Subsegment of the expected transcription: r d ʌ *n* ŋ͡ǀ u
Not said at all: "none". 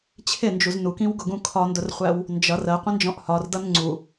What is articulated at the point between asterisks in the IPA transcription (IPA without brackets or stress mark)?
n